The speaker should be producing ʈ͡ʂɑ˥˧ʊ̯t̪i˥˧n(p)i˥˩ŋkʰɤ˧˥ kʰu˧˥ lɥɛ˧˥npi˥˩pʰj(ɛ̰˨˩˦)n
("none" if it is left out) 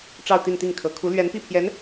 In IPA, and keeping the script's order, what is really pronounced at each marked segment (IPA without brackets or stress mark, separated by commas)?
t̪, ɛ˧˥